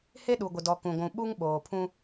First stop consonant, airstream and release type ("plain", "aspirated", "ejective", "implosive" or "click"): implosive